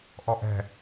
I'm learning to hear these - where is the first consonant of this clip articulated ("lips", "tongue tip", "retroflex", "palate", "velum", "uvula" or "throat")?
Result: throat